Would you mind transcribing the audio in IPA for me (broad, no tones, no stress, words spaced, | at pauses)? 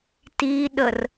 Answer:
tiɗər